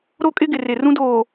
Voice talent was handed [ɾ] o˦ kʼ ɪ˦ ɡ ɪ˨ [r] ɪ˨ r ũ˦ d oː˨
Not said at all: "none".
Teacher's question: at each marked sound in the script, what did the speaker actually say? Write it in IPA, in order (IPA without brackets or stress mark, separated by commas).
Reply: ɾ, r